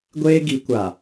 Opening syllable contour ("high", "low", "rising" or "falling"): high